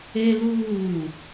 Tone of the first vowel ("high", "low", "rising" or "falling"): high